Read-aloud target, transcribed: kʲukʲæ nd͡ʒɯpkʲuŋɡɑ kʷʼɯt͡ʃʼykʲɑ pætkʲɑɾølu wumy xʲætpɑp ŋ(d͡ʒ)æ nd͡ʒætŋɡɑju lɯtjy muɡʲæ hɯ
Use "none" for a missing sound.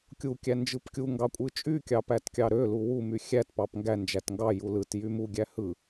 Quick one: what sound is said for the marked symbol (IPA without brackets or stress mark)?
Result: ɡ